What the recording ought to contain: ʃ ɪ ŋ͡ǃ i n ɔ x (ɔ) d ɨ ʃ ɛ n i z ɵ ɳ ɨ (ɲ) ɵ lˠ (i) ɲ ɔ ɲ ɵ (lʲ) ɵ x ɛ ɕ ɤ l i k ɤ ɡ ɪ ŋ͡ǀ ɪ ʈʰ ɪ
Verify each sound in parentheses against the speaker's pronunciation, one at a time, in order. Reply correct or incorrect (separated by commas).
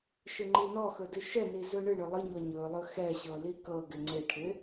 incorrect, incorrect, incorrect, incorrect